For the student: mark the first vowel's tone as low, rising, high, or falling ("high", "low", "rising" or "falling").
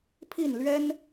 falling